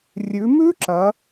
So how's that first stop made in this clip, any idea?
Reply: click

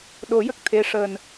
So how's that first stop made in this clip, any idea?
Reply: implosive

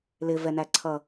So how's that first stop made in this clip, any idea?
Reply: click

